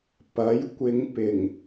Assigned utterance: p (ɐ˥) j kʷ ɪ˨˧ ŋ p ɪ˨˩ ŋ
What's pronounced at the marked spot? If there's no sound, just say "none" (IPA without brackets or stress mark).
ɐ˨˥